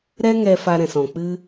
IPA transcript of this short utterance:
ɾ ɛ˦ ŋ ɛ˧ f a˧ ɾ ɛ̃˨ s ɔ̃˨ k͡p ɨ˦

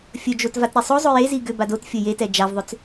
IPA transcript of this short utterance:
fʲ ɵ d͡ʒ o t v a t ɾ e sˤ o zˤ o j e z i ɡ ʏ b a d o t fʲ ɵ j e t ɛ d͡ʒ a v ðˤ ʏ t͡s

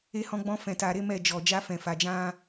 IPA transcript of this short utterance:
e˧ h ɔ̃˧ ɡ͡b ɔ̃˧ f ɛ̃˨ t a˨ ɾ e˨˦ m ɛ˦˨ d͡ʒ ɔ˨ d͡ʒ a˧ f ɛ̃˨ f a˨ d͡ʒ ã˧

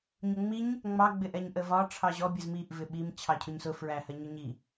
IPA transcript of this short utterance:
ɲ ʊ ŋ͡m i ɲ | ŋ͡m ɑ ɡ͡b ɪ ʔ ɛ ɲ ʔ ə v ɒ ʈ͡ʂʰ ɑ ʑ ɔ bʲ ə z m i ʔ v ɪ ɓ i m t͡ɕʰ ɑ cʰ ʊ ɲ s ʊ f ɹ æ h ɜ ɲ ʊ ɲ i

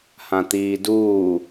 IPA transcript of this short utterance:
h ã t̪ iː d uː

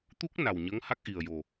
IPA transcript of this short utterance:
t̪ u˦˥ k̚ n a˨˩ w ɲ ə˧˥ ŋ h a˦˥ k̚ ʔ i˨˩ ə̯ j o˨˩

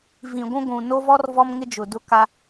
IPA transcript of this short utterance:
v ĩ˨ ɡʷ ũ˦ ɡʷ ũ˨ n o˦ v ɔ˦ r v ɔ˦ m ŋ ɪ˦ d͡ʒ ʊ˨ d ʊ˦ k a˦

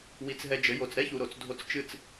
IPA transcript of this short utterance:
w i˨˦ t͡s ɦ ɛ˧ d͡ʒ ɘ˨˦ j o˨ t͡s ɾ ɛ˦ ç u˨ ɾ o˨ t͡s dʱ o˧ t͡s t͡ʃ ɨ˦˨ t͡s

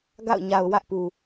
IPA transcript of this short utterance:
ɡ a̰˦˨ ʊ̯ ɲ a˨ ʊ̯ w ä˦ ʔ p u˨

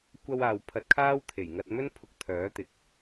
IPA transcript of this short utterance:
kʷ ɐ˧ w aː˨ w pʰ ɐ˧ t̚ kʰ aː˥ w t̪ʰ e˨˩ j ŋ ɐ˧ t̚ m ɵ˥ n pʰ ʊ˧ k̚ t̪ʰ œː˨˥ t̪ ɪ˨ k̚

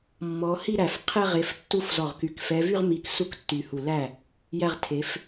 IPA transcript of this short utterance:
mː ɔ˨˦ h i˥˧ ɾ æ˧˩ f qʰ ɛ˥˧ ʁ e˨˦ f tː u˥˧ f z ɔ˧˩ ʁ k y˨˦ k f ɛ˨˦ v y˥˧ ʁ m i˧˩ k s u˥˧ k tː y˧˩ h u˧˩ l æ˥˩ | j æ˥˧ ʁ tʰ e˨˦ f

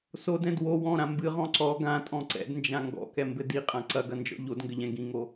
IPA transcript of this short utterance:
s o d ɛ̃ d w o w ɔ̃ ɾ ã m b ɨ ʁ ɔ̃ ǀ ɔ ɡ ã tʼ ɔ̃ ǀ ɛ̰ d n d͡ʒ ã ŋ ɡ ɔ̰ k ɛ m b ɘ d i qʼ ã ǀ ɐ ɡ ɐ n d͡ʒ ɔ̰ ʎ o d ŋ ɡ ɘ ʎ ɛ̃ ɡ ĩ ŋ o

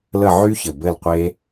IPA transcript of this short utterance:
l ə˦˨ ʕ y˦˥ ç ɘ˨˩ b ɘ˦˨ l qʷ e˦˥

